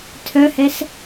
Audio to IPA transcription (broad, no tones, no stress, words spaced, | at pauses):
tʰœhɛs